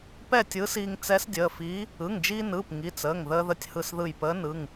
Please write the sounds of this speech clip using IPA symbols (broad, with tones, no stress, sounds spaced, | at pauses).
p ɛ˥˨ tʲ ɯː˧˥ s iː˧ ŋ t͡s ɛ˧˥ s dʲ əː˩˧˩ f iː˧˥ | ɯ˩˧˩ ŋ d͡ʒ iː˧ n ɯː˩˧˩ p ŋ i˩˧˩ t͡s əː˩˧˩ ŋ ð əː˧ ð ə˧˩ tʲ h ɯ˧˩ s ð ɯ˧˩ j p əː˧˥ n ɯ˩˧˩ ŋ